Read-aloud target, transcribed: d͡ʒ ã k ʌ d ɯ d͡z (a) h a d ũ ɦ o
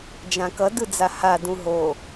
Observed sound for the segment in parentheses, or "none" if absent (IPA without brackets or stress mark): a